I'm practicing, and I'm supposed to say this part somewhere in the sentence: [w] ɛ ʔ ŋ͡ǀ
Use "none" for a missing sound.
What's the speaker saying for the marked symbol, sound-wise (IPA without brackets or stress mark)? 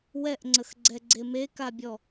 w